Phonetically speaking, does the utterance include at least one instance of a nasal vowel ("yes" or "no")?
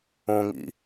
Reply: yes